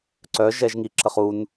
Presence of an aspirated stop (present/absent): present